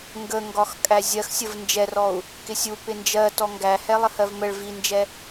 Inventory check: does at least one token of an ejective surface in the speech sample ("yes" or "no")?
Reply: yes